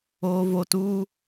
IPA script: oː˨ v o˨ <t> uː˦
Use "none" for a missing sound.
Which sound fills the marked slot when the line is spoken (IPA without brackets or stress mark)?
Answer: t